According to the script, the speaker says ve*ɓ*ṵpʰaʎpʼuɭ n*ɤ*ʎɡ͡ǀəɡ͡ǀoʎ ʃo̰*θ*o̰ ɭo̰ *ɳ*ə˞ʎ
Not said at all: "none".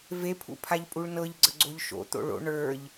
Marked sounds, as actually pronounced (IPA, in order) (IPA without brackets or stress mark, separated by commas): pʰ, ɤ, t̪, ɳ